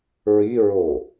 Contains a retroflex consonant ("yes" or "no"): no